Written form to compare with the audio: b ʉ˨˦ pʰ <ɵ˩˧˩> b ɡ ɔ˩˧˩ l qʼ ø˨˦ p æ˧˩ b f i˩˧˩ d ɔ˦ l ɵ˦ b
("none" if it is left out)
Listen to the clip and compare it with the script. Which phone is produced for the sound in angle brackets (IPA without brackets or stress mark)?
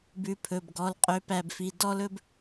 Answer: ɵ˩˧˩